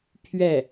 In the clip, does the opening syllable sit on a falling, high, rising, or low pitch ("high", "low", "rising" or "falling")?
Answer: falling